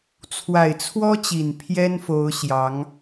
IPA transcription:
t͡sʰ w a˨˩ ɪ̯ t͡sʰ w ɔ˥ t͡ɕ i˨˩ n pʰ j ɛ˥ n f o˧˥ ʊ̯ ɕ j ɑ˧˥ ŋ

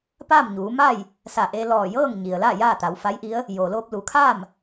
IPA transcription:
p aː˥˨ m ɲ uː˩˧ m a˥˨ j | s a˧˩ ʔ e˧ l ɔː˧˩ j ɤː˥˨ ŋ ɲ i˩ ə̯ l a˥˨ j aː˥˨ t̪ a˩˧ w f a˧˥ j ʔ i˧˥ ə̯ | j oː˩ l oː˧ p̚ l u˩˧ kʰ aː˥˨ m

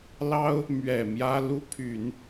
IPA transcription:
l ɑ˥ ʊ̯ | m ɥ ɛ˨˩ m j ä˥ l u˥ pʰ y˨˩˦ n

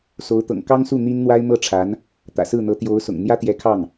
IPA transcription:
s o˧˥ ʊ̯ t̪ ɤ̰˨˩ ŋ k ɑ˥ ŋ s u˥˩ n̪ i˥ n n̪ w a˥ ɪ̯ m ɤ˥˩ ʈ͡ʂʰ a˧˥ n | t̪ ä̰˨˩ s ɹ̩˥˩ n̪ ɤ˧˥ t̪ j o˧˥ ʊ̯ s ʊ̰˨˩ ŋ n̪ j ä˥ t̪ j ɛ˧˥ kʰ ɑ˥˩ ŋ

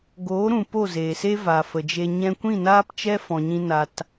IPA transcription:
ɡ oː˨˦ ɾ ũ˨ p o˦˨ z eː˨ s e˦ v a˨ f ə˨ d͡ʒ e˧ ɲ ɛ̃˧ kʷ ĩ˦˨ n aː˦ p t͡ʃ ɛ˦ f ɔ̃˧ ɲ ĩ˦ n a˧ t

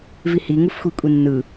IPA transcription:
v i h i ŋ u f xʷ i kʷʼ i nː ɯ

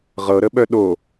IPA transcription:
ʁ ɤ ɾ ə ɓ œ ɗ o

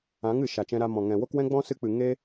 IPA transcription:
ã˨˦ ŋ ɨ˨ ʃ a˨ t͡ʃ ɛ̃˧ ɾ a˧ m ɔ̃˨ ŋ ɛ̃˨ w o˦ k w ɛ̃˦ ɡ͡b ɔ̃˦ s ɨ˧ k͡p ɨ˨ ŋ e˦

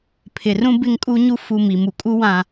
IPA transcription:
pʰ ɪ˨ r ũ˦ b ɪ˦ ŋ kʼ u˦ ɲ u˦ f u˨ m i˨ m u˨ kʼ u˦ w ã˨

